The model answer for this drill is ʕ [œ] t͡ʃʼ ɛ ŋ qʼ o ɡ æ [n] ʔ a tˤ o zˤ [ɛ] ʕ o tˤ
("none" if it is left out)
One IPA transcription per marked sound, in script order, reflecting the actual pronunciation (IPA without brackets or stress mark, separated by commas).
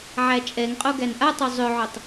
æ, n, ʏ